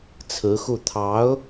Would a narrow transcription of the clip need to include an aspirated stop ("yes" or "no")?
yes